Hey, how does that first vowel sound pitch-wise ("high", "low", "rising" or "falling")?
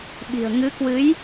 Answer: low